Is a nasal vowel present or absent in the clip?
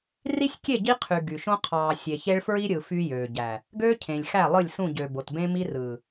present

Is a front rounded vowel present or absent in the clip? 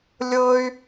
present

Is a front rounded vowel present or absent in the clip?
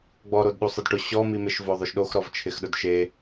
absent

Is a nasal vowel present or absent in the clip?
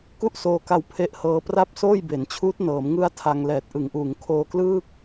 absent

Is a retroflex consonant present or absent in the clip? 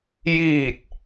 absent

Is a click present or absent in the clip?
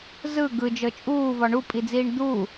absent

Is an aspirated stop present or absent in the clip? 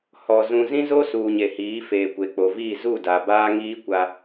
absent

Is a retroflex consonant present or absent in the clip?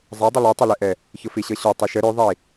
absent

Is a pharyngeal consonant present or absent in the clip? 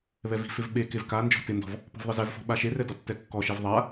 absent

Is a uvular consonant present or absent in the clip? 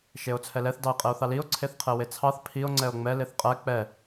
present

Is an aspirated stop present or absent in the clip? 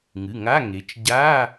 absent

